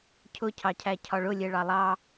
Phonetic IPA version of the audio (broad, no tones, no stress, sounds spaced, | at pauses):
cʰ ʊ cʰ ɑ cʰ æ cʰ ɒ ɭ ʊ lʲ ɛ ɭ ɑ lˠ ɑ